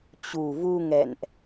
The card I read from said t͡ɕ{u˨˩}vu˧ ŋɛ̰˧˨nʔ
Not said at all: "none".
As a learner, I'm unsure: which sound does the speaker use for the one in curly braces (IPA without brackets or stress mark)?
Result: u˨˩